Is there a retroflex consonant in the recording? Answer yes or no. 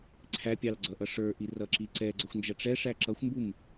yes